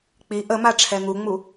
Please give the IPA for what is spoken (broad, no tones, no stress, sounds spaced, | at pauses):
k͡p i ʔ ə m a ʈ͡ʂʰ ɛ ŋ u ŋ͡m u